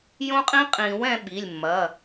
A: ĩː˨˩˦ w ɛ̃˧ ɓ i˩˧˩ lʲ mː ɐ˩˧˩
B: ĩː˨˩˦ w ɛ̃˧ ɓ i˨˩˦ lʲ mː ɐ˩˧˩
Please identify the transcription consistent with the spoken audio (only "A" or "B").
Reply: A